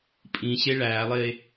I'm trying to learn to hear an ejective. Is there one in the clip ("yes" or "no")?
yes